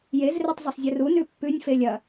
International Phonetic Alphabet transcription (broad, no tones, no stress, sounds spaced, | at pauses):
j e z r e tˤ zˤ o sˤ zʲ ɨ r u n ʉ pː ʉ nʲ f e lʲ ɐ